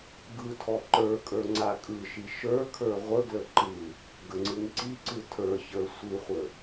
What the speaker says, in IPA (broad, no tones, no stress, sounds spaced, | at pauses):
ɡ ɯ tʰ ɔ ǃ ə˞ kʼ ə˞ ŋ͡ǀ a kʼ ɯ ʃ i ʃ ə˞ kʰ ə˞ ʁʷ ə ɡ l ə ǃ ɯ | ɡ ə ŋ͡ǀ ɯ ŋ ǀ i ǀ ɯ tʰ ə˞ ç ə˞ sʷ ɯ χʷ ə